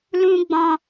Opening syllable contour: high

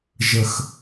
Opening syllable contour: low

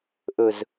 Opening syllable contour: low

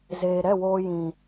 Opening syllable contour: low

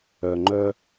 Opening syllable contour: low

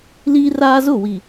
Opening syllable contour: high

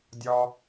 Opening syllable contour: low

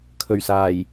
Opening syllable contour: low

